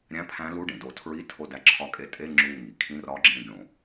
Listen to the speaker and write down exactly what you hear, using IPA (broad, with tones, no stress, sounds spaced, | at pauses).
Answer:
ɾʲ æ̃˧˥˧ pʰ æ̃˧˥ l u˧˥˧ ɖ ẽ˩ d o˧˩˧ tʰ ɹ i˧˥˧ tʰ o˦˨ d æ˧˥ ǁʰ ɒ˧˥ kʼ e˧˥ tʼ e˧˥˧ ŋ͡ǁ u˦˨ ŋ i˩ kʰ ĩ˧˥˧ r ɒ˧˥ ɡ͡ǁ ẽ˦˨ ɡʲ õ˧˩˧